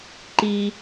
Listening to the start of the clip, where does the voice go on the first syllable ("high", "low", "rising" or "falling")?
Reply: high